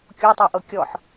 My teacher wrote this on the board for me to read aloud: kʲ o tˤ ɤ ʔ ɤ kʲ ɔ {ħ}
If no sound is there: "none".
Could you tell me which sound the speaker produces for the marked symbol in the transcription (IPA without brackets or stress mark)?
ħ